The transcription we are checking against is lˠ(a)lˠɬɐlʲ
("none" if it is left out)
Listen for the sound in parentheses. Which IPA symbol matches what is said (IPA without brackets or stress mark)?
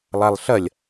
a